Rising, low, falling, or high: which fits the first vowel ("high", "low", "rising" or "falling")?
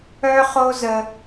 high